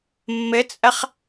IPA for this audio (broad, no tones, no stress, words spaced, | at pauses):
mːɘt͡sʼɐχ